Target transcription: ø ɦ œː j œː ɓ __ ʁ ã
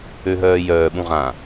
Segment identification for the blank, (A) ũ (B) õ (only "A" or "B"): A